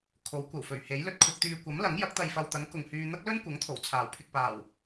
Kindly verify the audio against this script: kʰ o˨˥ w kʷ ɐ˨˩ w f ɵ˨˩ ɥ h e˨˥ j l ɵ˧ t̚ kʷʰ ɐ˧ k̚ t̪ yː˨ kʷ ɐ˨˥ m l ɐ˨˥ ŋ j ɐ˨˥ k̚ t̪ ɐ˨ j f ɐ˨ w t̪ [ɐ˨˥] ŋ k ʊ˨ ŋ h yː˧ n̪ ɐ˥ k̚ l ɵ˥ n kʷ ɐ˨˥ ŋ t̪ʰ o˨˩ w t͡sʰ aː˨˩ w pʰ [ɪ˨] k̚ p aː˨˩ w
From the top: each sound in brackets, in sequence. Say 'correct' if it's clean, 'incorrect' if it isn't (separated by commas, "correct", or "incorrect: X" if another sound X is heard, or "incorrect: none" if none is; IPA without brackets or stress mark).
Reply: correct, correct